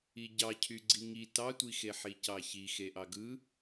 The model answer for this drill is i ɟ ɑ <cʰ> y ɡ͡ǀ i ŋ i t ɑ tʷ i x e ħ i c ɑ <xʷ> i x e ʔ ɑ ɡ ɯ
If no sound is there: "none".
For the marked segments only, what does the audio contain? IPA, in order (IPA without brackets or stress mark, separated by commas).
cʰ, ç